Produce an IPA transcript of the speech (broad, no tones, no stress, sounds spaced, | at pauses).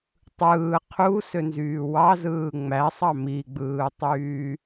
tˤ ɯː qʰ u s ø n z yː w ɑ z ɯː ŋ͡m æ sˤ ɑ m i ɡ͡b ɯː tˤ yː